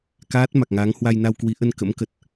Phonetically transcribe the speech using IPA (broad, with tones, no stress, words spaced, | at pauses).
kaː˦˥t̚ ma˨˩k̚ŋa˨˦ŋ hwa˧jna˧wkwi˨˦ʔə˧n kə̰˧˥mkə˨˩t̚